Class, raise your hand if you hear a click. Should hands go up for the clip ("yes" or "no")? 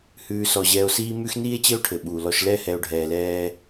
no